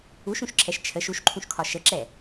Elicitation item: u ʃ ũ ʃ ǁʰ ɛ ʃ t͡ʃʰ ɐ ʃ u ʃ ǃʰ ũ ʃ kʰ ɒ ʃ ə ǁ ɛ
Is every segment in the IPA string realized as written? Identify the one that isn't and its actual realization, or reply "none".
ɐ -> ə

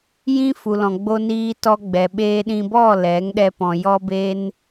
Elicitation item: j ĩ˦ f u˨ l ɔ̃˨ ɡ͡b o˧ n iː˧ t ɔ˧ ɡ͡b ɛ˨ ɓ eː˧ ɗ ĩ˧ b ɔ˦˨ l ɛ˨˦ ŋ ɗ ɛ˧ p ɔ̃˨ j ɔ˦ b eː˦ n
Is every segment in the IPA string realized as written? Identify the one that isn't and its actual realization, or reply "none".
none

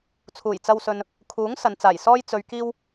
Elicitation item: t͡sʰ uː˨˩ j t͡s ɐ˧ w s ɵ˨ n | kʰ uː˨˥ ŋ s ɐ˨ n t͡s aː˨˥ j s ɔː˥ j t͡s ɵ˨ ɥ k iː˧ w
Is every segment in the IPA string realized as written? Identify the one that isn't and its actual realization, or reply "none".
aː˨˥ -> aː˨˩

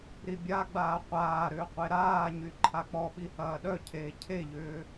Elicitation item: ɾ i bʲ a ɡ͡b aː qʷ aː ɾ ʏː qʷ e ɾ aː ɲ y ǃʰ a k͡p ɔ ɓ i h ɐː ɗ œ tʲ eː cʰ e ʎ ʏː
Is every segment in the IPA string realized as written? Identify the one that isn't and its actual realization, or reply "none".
tʲ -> cʰ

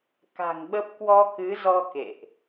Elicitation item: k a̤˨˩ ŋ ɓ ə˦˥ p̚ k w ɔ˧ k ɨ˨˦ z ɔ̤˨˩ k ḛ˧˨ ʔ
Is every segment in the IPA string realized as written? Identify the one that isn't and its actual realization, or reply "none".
ɔ̤˨˩ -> ɔ˧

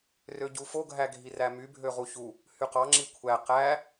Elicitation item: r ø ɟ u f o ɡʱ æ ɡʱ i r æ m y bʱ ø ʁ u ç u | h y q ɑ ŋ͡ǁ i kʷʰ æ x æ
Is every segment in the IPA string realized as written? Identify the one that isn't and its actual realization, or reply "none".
x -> q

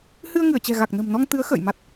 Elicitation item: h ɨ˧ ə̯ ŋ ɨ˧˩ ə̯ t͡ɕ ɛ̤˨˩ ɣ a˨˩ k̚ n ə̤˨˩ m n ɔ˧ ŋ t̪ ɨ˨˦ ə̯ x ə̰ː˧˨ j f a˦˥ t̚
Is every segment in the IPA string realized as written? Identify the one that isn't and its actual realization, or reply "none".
f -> m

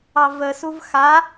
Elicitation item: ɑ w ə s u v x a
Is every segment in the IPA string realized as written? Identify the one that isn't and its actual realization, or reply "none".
w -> v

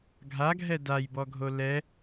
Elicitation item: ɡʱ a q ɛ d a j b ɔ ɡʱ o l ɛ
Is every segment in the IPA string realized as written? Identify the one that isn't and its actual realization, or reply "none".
q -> ɡʱ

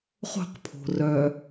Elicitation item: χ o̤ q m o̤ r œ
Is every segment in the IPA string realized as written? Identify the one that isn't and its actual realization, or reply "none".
m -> pʰ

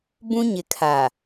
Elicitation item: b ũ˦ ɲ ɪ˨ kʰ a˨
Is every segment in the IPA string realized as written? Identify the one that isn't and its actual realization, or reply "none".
none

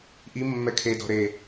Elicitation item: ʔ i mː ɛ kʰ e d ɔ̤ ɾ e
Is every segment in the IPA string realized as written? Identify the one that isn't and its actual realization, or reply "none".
none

